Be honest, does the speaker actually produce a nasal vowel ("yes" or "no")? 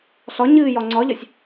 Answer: no